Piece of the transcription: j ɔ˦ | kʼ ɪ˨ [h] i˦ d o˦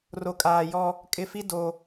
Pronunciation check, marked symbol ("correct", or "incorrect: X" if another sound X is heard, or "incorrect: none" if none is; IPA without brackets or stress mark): incorrect: f